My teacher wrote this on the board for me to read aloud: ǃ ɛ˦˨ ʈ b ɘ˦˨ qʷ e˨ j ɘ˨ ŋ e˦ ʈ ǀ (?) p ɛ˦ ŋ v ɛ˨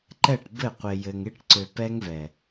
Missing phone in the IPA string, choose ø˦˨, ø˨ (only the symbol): ø˨